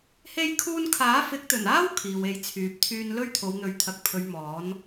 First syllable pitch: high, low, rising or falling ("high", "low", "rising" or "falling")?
high